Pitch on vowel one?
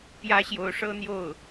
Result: high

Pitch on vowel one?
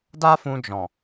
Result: high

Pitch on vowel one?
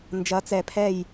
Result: rising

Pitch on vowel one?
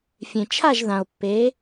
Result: low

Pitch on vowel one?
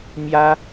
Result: high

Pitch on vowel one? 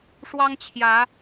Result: high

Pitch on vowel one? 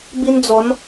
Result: high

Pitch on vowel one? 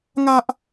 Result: high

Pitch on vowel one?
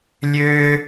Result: high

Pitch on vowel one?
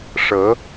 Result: rising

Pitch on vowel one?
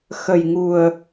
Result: low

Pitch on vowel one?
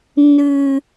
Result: low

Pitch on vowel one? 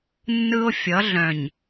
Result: high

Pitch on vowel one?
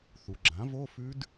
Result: low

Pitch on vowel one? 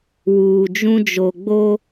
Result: low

